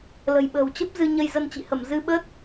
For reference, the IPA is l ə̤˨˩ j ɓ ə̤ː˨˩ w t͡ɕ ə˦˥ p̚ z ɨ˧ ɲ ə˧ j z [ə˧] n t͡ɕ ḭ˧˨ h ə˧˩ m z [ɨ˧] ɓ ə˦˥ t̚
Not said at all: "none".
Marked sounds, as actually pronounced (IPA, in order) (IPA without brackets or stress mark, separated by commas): ə˧, ɨ˧